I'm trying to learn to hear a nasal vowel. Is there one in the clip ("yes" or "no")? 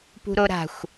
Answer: no